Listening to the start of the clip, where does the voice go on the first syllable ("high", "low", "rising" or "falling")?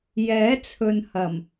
rising